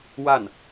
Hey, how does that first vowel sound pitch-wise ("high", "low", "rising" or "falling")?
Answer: falling